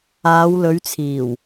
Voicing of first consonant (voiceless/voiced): voiced